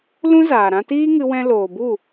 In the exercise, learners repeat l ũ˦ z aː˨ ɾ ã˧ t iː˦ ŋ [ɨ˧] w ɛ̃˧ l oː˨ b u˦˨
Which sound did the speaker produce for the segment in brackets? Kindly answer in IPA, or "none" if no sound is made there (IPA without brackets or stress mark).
ɨ˧